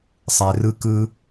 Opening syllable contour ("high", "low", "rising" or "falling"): low